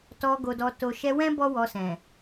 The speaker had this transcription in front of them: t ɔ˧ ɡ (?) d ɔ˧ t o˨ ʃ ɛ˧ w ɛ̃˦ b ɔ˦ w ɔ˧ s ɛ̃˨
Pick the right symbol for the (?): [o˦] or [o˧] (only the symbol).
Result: o˧